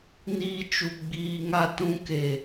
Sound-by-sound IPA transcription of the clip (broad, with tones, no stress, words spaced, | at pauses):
niː˦t͡ʃu˧ɡ͡biː˧ŋa˦˨ tũ˧ke˨